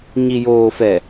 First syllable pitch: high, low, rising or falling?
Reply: low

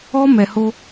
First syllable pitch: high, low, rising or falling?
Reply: high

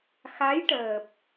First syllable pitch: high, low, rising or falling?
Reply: rising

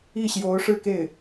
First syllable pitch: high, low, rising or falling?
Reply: falling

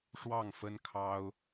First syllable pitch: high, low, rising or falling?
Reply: falling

